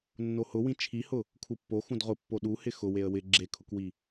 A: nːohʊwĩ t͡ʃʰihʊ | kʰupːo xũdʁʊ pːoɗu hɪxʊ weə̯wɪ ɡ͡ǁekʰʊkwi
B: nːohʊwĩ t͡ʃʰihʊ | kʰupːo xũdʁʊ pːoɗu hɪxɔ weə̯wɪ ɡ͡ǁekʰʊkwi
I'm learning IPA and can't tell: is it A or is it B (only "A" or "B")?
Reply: A